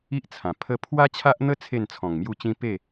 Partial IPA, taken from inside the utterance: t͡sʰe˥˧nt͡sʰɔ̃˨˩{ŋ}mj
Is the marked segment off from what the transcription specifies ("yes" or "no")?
no